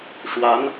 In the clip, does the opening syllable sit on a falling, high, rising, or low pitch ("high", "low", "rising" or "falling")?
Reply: rising